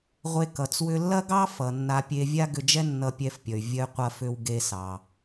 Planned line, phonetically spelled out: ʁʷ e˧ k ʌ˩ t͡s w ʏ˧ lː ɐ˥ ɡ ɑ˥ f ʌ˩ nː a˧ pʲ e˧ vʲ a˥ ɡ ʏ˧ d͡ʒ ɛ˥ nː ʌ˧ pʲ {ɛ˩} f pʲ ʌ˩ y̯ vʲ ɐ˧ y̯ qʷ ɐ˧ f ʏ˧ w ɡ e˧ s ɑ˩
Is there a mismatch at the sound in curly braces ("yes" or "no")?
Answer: yes